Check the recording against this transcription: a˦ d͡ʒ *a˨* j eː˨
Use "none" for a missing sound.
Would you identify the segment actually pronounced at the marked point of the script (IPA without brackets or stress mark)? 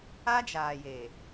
aː˨